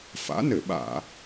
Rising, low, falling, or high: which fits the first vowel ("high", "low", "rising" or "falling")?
rising